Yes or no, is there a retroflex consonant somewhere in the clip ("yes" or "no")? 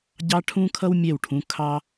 yes